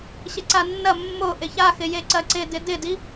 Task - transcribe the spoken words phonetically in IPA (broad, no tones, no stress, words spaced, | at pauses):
ɕɪǀanːɐ mːo ʔɪça xɪjeǀɐǀɪ dɪdɪdi